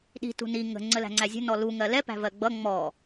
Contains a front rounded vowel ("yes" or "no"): no